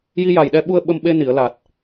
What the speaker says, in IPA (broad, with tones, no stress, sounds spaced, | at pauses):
j i˧ j a˨˩ j ɗ ɛ˧ ɓ u˧ ə̯ ɓ ə˧ m ɓ e˧ n i˨˩˨ ə̯ l a˨˩ t̚